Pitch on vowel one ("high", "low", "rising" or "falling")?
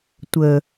low